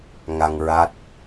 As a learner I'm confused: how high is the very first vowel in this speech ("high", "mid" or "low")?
low